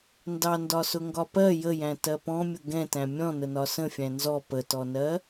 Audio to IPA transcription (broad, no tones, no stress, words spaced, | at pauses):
ndɑndɒsʊ ŋɡɒpɜ jəjæ̃ tɜpɔ̃mʲʊ ɡɛ̃tæ̃ mʲɔ̃nənɒ sə̃fʲæ̃ nzɔ pətɔnɜ